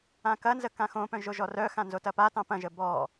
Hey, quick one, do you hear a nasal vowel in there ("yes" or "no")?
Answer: yes